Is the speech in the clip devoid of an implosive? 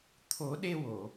no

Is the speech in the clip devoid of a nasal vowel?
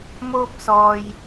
yes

